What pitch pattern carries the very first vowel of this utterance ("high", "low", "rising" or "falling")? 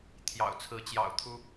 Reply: low